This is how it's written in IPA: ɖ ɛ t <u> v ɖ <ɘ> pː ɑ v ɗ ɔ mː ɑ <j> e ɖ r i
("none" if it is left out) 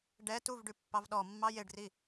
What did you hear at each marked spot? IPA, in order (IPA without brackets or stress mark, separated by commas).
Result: u, ʉ, j